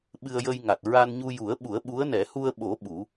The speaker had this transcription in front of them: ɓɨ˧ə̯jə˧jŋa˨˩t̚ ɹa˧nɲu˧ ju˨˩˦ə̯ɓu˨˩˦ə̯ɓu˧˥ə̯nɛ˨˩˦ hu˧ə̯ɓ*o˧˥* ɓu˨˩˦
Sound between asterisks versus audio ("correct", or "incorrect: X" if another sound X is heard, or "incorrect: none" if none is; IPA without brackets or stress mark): incorrect: o˨˩˦